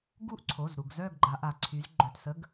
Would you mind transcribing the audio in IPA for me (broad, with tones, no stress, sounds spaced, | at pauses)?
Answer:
ɡ u˦˨ ʔ ǀʰ o˩˧˩ z ɾ u˩ ɡ z œ˦˨ ɡ ɡ͡ǃ a˩˧ ʔ a˩ ǀʰ y˩˧ z ɡ͡ǃ œ˩˧˩ t s ə˩˧˩ ɡ